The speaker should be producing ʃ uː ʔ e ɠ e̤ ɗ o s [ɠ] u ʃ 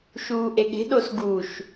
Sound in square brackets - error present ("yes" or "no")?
yes